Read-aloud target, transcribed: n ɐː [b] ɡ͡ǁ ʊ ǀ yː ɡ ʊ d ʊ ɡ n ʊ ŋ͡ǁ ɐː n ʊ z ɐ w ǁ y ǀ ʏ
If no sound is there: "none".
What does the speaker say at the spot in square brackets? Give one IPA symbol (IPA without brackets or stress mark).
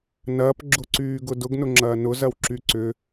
p